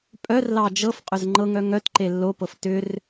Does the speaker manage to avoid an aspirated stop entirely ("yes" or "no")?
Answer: yes